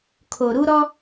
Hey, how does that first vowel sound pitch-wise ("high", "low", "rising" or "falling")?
low